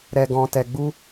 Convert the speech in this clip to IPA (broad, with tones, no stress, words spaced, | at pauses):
ɾɛ˨ɡɔ̃˨tɛ˨ɡ͡bu˧